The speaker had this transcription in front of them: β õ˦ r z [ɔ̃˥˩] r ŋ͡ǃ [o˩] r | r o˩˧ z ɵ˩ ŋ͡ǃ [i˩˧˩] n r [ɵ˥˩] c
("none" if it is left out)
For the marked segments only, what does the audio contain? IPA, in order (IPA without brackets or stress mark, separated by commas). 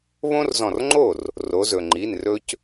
ɔ̃˧˩, o˥˩, i˩˧˩, ɵ˦